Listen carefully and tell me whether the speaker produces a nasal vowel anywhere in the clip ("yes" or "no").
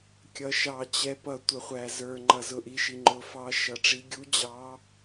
no